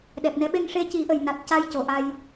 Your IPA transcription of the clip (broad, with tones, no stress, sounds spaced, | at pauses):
ɗ ɛ˨˩ p̚ n ɛ˧˥ ɓ e˧ ŋ ʂ e˧˥ c i˨˩˦ ʔ ə˨˩ j n a˨˩ t̚ c a˧ j c o˨˩ ʔ a˧ j